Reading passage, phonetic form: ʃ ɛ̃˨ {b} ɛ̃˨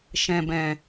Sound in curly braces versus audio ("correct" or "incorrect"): correct